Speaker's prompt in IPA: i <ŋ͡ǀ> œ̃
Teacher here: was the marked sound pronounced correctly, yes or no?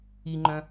no